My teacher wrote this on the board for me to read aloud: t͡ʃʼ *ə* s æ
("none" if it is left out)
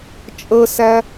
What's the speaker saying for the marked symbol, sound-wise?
ə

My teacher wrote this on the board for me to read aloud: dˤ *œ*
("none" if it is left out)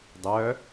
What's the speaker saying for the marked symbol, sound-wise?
œ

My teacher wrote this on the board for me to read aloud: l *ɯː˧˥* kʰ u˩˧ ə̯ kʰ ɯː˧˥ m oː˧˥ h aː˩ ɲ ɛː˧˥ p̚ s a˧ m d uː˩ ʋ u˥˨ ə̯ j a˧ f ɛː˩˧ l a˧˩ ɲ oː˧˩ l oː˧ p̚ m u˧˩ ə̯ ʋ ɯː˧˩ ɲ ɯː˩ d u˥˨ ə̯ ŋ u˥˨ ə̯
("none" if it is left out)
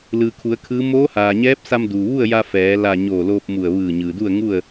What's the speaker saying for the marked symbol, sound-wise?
ɯː˩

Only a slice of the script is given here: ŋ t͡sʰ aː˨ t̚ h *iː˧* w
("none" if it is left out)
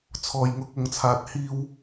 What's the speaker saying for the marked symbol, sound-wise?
iː˧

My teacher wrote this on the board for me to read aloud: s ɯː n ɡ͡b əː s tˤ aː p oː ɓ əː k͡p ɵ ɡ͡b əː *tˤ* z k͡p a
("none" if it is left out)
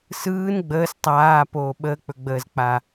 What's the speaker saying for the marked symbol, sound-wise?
none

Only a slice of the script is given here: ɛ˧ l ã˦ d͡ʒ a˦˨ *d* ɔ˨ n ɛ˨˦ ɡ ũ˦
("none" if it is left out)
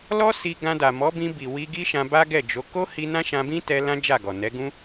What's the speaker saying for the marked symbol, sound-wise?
ɡ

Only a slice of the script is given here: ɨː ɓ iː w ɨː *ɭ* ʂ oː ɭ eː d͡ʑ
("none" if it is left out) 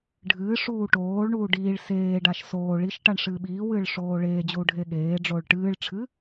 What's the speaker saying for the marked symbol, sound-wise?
ɭ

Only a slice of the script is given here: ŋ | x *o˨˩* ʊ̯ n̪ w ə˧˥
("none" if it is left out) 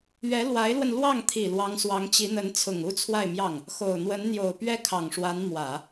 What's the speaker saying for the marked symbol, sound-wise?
o˨˩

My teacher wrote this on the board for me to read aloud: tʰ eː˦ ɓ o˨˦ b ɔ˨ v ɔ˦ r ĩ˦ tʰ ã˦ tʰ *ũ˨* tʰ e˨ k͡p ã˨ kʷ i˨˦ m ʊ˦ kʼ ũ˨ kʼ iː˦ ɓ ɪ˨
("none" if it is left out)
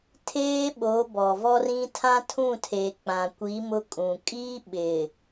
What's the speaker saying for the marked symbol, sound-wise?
ũ˦˨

